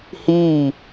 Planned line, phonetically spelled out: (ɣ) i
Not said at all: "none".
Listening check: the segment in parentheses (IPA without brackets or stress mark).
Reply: h